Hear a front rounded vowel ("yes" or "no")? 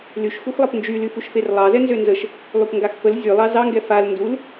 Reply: yes